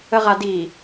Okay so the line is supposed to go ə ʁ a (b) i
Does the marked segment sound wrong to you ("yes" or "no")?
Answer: yes